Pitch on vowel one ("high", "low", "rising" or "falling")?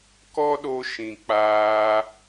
high